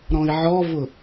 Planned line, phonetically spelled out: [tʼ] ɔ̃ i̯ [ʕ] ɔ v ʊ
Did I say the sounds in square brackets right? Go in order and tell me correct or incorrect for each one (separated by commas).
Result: incorrect, correct